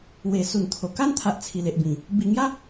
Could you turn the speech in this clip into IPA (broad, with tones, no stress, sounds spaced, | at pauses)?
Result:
w e˨˩ s u˨˩ n t̪ʰ o˨˩ k a˦ n t̪ʰ a˨ ʔ t͡sʰ i˨˩ l e˨ ʔ b ĩ˨˩ | b i˨˩ ŋ j a˦